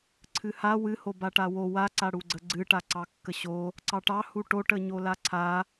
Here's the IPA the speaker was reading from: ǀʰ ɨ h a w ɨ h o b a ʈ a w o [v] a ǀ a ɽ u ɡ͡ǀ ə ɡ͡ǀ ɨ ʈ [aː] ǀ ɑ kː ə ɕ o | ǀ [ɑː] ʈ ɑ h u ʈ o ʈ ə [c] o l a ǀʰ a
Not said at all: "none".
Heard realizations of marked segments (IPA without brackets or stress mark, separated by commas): w, a, ɑ, ɲ